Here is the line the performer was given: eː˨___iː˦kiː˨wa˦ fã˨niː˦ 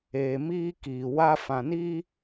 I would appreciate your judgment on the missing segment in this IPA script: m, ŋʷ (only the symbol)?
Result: m